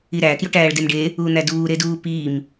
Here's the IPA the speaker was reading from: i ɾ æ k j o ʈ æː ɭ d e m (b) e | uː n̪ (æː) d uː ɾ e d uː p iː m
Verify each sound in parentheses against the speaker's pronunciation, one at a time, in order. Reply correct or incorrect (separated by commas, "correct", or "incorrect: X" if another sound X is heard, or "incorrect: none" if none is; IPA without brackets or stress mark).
incorrect: ɖ, incorrect: æ